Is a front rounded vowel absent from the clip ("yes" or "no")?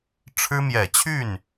no